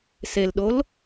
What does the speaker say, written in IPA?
s e l ɗ o l

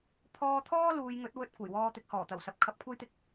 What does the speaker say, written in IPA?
pʰ ɔː˧ t̪ʰ ɔː˥ l uː˨˧ j ŋ ɵ˨˥ t̚ w ɵ˧ t̚ kʷ ɐ˨˩ j w ɔː˧ t̪ ɪ˨˥ k̚ h ɔː˨˩ t̪ ɐ˨˩ w s ɐ˨ p̚ kʰ ɐ˧ p̚ kʷʰ ɐ˥ j t̪ ɪ˧ k̚

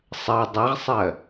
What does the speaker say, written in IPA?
sˤ ɜ dˤ ɛ ʁ sˤ ɜ

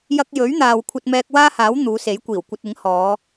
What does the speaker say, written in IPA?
j ɐ˧ k̚ j ɵ˨˥ ɥ n̪ aː˨ w kʷʰ ɐ˧ t̚ m ɛː˧ k̚ w aː˥ h aː˨˥ w n̪ uː˨˧ s e˨˥ j kʷ iː˨˩ w kʷ ɐ˧ t̚ ɪ˨˥ ŋ h ɔː˨˧

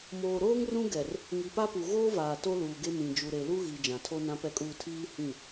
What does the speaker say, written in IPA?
m oː˨ ɾ oː˦ ŋ r ũ˦ ɡ ɛ˨ r | ŋ i˨ p a˦ p u˨ ɣ oː˦ v aː˨ t o˦ l uː˨ ɡ e˦ m ĩ˨ d͡ʒ u˨ ɾ e˨ l u˦ ɣ i˨ d͡ʒ ã˨ tʰ o˦ n ã˦ p ɛ˦ kʼ uː˦ tʰ iː˦ h ĩ˦˨

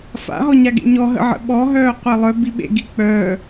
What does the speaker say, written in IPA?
f a̰ ɦ ɔ ɲ a ɡ ḛ ɲ ɔ ɦ ə̰ ʕ ə̰ ɓ ɔ ɦ œː qʷ e lˠ œ b i ɓ ḛ ɡ i k͡p œ

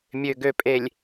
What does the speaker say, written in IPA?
mʲ ø˨ ɡ ø˨ pʼ e˨ lʲ

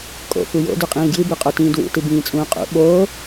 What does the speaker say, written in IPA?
kʼ o̰ f u j o̰ d ʉ qʼ ĩː ɡ j ɨ b ʉ qʼ o t ĩː d w ṵ t ɨ b ĩː t͡sʼ ũː qʼ ṵ ɓ oː

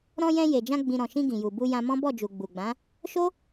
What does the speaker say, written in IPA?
ɾ ɔ̃˧ j ɛ̃˧ j e˨ d͡ʒ ã˧ ɡ͡b ĩ˨ ɾ ɔ̃˨ ʃ ĩ˧ ɡ ĩ˨ j u˨ b u˧ j ã˧ m ɔ̃˦ b ɔ˦˨ d͡ʒ u˨ ɡ͡b u˨ ɡ͡b ã˨˦ | ʃ o˦

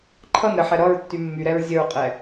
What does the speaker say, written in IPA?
ǃʰ ʌ n ɾ ə ħ ɛ ɾ ʌ ɹ tː y mː y ɾ ɛ ɹ zʲ ə ɹ qʼ ɛ

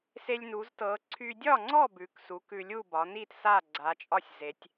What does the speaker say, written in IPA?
s e˧ lʲ n u˩˧ z t ɤ˩˧ ǀʰ y˧ dʲ ɒ˥˨ ŋ͡ǀ ɔ˥˨ b ʉ˩˥ k s u˩˥ k ʉ˧ lʲ u˥˨ b ɒ˩˧ n i˥˨ t s a˥˨ ɡ͡ǀ a˩˧ t͡ʃʼ ɒ˥˨ sʲ z e˩˧ tʲ

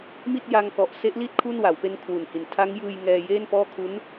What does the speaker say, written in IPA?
m i˥˩ t̚ j a˧ ŋ k ɔ˨˩ ʔ s e˦˥ ʔ l i˥˩ t̚ kʰ u˥˩ n w a˩˦ w p e˧ n kʰ w u˨˩ n h i˨˩ n tʰ a˦˥ ŋ j ɯː˧ j ŋ ɛː˧ j eː˥˩ n p ɔː˥˩ kʰ u˦˥ n

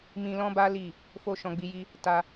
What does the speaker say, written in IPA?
m ĩ˧ l ɔ̃˦ b a˦ l i˦˨ | f o˦ ʃ ɔ̃˧ ɡ͡b i˧ j i˦ | t a˦

